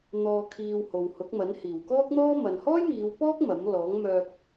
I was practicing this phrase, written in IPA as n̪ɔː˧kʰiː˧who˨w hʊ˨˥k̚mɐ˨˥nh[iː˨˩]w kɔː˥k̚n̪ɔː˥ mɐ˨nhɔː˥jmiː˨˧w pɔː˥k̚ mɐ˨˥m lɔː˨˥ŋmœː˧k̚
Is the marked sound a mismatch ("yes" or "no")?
no